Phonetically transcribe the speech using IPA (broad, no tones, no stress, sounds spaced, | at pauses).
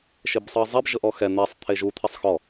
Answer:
ʃ e b sˤ ɯ ə̯ zˤ e b ʒ ɤ ʔ ɔ x ɛ n̪ e sˤ t̪ʰ e ʒ u t̪ʰ e sˤ x ɔ